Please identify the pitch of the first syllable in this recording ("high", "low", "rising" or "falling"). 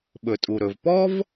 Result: low